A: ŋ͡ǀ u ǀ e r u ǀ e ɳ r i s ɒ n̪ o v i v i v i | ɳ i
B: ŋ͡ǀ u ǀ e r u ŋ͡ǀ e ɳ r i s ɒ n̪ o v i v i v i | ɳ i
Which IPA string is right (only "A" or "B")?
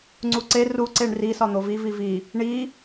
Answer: A